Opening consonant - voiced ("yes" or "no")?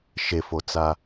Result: no